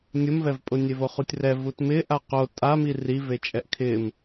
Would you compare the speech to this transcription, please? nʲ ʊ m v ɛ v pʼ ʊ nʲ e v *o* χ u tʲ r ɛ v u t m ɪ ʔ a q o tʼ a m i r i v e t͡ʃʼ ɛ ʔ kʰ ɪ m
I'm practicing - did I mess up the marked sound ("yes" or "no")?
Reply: no